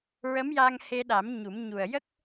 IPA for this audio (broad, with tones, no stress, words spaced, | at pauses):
ɹə˧˥mja˧ŋ he˧ɗa˨˩˦m ɲu˨˩˦m ɲu˨˩ə̯jə˦˥k̚